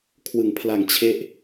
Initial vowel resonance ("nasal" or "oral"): oral